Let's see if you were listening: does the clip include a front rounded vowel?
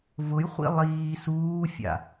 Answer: no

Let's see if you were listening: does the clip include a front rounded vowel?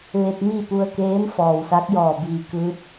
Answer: no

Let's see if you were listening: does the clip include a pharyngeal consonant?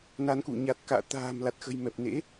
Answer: no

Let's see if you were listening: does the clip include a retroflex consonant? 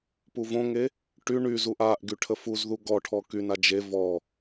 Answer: yes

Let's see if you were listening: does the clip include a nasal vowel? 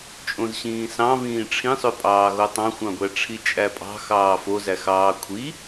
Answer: yes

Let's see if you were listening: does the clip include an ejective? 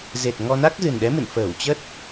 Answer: no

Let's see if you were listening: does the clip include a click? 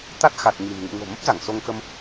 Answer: no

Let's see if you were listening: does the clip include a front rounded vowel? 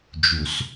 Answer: no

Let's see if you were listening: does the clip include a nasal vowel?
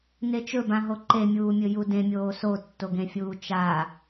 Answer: yes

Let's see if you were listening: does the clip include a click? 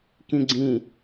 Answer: yes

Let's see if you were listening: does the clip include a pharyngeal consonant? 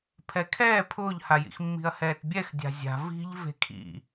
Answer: no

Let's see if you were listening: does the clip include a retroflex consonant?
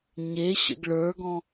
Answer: yes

